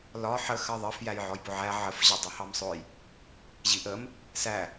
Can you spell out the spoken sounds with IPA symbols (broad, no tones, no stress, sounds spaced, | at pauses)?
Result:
l ɒ ħ ə x ɜ ðˤ ɜ f j æ j ʕ ɔ j b ʊ ʕ æ ʕ ə f ʑ ʌ dˤ u h ɑ m sˤ ʊ j | ʑ i ʔ ə m | s æ